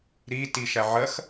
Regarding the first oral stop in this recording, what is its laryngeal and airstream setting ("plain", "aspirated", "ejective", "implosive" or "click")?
plain